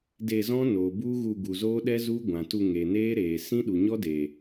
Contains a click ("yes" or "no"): no